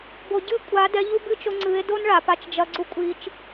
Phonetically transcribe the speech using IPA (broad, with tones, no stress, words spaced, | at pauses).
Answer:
bo˨ɟɨ˦˨kʷʼa˨˦ dɛ˧ʎu˦bɨ˦t͡ʃo˧ ŋ͡ǀɨ˨˦e̯ do˦nɭa˨pa˧t͡ʃ d͡ʒɐ˧ɡ͡ǀu˦kʷʼi˧t͡ʃ